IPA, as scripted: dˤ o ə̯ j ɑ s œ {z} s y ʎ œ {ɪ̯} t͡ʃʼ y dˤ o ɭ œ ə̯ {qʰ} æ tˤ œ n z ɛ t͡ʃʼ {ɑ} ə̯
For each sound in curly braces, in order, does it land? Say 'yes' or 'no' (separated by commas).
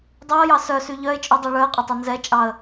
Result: no, yes, no, yes